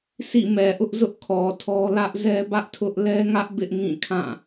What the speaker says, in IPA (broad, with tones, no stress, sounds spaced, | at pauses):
sʰ ḭ˦˨ m ɛ˨ ʔ ʊ˦ ʔ z ʊ˦ ʔ kʰ ɔ˨ tʰ ɔ˦ l ä˦ ʔ z ɛ˦ b ä˦ ʔ tʰ ʊ˦ ʔ l ɛ˦ ŋ ä˦ ʔ b ɪ˦ ʔ ŋ ĩ˦˨ kʰ ã˦˨